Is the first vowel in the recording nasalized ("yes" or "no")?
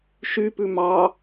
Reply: no